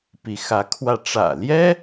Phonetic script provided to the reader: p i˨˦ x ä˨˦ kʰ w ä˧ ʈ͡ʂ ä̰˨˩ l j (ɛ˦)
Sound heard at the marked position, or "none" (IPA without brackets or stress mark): ɛ˦